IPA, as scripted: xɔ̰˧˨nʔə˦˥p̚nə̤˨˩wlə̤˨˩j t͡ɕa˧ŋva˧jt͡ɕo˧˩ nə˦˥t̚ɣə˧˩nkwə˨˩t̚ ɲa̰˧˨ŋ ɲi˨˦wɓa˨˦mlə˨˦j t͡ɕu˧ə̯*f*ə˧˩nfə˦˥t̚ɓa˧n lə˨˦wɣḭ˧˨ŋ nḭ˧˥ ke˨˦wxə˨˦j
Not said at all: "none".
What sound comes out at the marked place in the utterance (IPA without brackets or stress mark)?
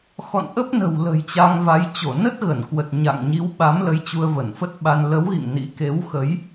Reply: v